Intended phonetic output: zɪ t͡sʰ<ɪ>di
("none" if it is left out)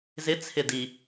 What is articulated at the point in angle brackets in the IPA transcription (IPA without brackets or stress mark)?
ɪ